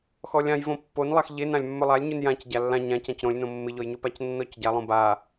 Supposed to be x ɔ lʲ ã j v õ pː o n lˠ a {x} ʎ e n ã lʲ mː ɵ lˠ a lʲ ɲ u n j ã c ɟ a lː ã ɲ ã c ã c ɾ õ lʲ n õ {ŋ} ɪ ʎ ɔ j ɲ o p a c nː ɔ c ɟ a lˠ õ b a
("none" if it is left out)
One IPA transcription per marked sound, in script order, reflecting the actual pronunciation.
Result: x, mː

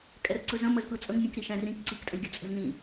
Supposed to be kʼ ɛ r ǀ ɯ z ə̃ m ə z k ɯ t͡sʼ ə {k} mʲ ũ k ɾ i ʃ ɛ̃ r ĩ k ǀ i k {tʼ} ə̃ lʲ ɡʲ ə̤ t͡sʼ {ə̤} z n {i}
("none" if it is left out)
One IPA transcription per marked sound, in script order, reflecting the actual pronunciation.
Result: ŋ, tʼ, ə̤, ĩ

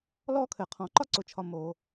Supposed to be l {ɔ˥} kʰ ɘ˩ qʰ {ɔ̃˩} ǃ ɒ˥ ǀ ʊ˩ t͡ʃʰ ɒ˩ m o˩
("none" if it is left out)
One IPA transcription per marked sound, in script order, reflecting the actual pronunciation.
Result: ɔ˥, ɔ̃˩

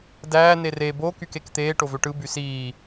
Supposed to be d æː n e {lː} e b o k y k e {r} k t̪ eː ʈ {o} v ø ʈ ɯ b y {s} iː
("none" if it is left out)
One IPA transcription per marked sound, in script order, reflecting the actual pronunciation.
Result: r, none, o, s

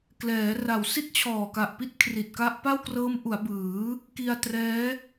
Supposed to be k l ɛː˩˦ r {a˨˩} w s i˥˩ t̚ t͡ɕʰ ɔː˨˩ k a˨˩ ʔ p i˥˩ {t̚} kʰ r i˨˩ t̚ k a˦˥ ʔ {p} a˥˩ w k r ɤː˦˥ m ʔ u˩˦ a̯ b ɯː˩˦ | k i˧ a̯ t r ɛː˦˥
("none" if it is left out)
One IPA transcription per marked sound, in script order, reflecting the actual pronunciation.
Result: a˨˩, t̚, p

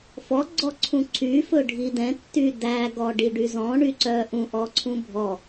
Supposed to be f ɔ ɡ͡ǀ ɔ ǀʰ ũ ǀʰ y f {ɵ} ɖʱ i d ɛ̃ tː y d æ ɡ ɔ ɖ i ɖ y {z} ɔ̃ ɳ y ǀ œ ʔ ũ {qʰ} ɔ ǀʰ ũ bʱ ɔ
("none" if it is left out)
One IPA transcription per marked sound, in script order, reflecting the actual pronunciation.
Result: ɵ, z, ʔ

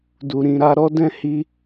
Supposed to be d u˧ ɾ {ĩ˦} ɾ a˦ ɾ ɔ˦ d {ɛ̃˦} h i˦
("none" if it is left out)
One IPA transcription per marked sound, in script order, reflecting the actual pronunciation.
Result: ĩ˧, ɛ̃˦

